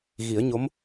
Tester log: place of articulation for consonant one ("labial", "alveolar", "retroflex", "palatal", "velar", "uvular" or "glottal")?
velar